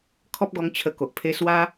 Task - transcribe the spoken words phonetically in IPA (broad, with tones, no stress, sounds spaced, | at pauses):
kʰ ɔ˦ p̚ ɡ ɔ˧ ŋ t͡ɕʰ ə˧ k o˨ ʔ pʰ e˦ s w a˦